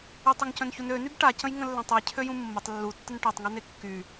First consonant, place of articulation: alveolar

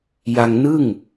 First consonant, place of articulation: palatal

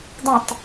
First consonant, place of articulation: alveolar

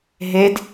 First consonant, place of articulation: glottal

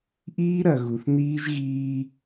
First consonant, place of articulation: glottal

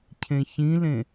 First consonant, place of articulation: palatal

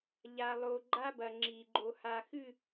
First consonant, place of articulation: palatal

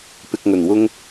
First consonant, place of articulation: labial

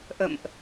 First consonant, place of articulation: glottal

